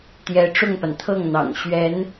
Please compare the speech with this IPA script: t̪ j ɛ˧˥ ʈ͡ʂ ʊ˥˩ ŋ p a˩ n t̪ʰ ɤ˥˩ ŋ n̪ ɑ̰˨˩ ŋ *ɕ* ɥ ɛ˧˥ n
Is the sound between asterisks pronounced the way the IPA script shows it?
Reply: yes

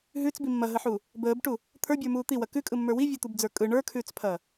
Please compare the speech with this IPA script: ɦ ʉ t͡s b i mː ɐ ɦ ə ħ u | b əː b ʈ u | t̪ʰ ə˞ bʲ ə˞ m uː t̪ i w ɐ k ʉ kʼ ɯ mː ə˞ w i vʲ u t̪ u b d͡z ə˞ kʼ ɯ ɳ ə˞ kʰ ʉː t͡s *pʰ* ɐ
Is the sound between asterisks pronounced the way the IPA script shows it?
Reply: yes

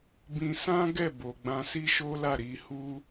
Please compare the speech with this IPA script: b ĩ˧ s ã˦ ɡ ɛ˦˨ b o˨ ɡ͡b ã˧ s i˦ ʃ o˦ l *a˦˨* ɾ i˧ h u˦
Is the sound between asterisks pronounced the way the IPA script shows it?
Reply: yes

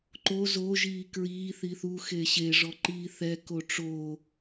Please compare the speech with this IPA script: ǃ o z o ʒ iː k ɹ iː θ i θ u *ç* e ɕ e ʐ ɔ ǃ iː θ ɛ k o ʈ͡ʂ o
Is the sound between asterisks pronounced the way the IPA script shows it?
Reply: no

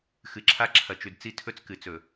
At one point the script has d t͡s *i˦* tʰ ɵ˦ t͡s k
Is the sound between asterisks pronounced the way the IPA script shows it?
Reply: yes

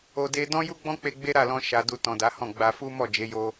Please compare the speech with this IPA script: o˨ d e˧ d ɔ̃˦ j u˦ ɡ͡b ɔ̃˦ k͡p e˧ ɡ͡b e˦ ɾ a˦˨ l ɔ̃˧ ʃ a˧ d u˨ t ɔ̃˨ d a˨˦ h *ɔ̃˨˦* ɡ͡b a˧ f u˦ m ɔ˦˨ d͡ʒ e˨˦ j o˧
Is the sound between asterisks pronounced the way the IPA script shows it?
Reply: no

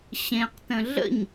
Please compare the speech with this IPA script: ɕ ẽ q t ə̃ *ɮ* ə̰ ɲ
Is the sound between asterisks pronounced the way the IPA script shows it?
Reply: yes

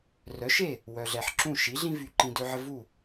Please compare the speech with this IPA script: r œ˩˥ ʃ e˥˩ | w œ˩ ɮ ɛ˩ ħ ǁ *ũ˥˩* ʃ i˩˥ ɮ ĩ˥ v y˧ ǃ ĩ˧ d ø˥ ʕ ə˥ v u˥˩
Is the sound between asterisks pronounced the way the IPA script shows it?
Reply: yes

